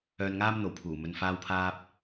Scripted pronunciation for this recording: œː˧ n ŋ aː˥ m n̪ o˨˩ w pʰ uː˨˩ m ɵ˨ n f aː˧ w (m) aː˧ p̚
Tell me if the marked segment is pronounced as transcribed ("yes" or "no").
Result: no